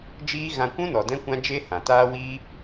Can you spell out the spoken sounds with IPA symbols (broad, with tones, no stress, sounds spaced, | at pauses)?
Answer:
d͡ʒ iː˦ ɣ ã˧ kʷ ũ˦ n ɔ˨ d ɛ̃˦ kʷ ã˦ d͡ʒ e˦ h ã˨ t aː˦ w iː˦